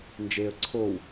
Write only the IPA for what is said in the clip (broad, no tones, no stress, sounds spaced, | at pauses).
n d͡ʒ e ə̯ ǀʰ o w